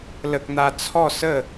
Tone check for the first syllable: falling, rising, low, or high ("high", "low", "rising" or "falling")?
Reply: high